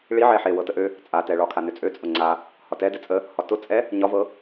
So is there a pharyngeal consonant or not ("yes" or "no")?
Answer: yes